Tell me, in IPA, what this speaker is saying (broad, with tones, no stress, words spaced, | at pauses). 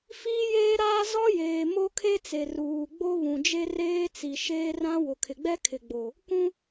fiː˦jeː˦ɾaː˦ zɔ˦jeː˨ mo˦kʰe˦t͡se˨ ruː˨ ɡ͡bo˦βũ˨d͡ʒe˦ reː˦t͡si˨ ʃeː˦rã˦ wʊ˨kʰɪ˨ɡ͡bɛ˦ kʰɪ˨ɡ͡bo˨ | kũ˦